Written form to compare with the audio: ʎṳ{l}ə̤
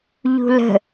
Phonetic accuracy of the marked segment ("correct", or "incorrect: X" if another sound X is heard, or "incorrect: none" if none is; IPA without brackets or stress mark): correct